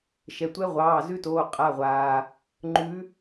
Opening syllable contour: low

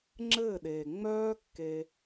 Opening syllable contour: falling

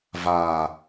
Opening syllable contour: low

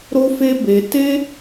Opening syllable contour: high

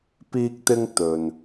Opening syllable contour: high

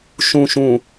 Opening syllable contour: low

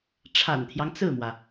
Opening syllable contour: low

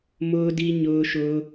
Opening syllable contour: high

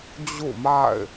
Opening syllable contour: falling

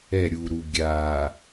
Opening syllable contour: falling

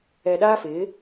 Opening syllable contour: low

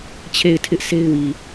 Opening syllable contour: falling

